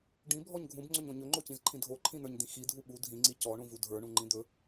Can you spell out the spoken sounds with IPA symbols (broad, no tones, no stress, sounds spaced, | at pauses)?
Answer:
ɖ ĩ bʱ ɔ ɲ ɡʱ ũ b ŋ͡ǀ ɵ ɲ õ ɲ ɵ ŋ͡ǃ o c ĩ z ǃʰ ĩ dʱ o ǃʰ ĩ n̪ ə˞ ɲ d̪ ĩ x i dʱ u ɓ u dʱ ĩ ŋ͡ǀ i c ɔ ɳ ũ v u dʱ ə˞ ɳ ũ ŋ͡ǃ ĩ d̪ ɵ